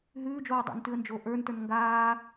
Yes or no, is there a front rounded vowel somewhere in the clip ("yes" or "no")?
no